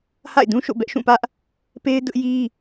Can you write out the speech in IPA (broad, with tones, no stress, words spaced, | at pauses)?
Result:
ha̰˦˨ɪ̯dũ˦ʃo̰˦˨ bɛ˦ʔʃũ˦˨pä˦ʔ | pe˦ɪ̯ dʊ˦ʔji˦